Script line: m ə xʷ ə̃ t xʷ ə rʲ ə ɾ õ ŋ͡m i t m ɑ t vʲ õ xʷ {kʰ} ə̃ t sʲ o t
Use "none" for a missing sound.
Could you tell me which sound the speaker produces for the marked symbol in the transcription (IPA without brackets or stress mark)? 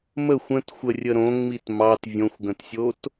ɡ